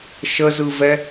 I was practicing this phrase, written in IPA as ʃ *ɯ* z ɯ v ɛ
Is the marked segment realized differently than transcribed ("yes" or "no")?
yes